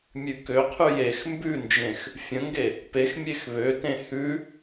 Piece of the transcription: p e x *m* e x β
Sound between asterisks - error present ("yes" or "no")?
yes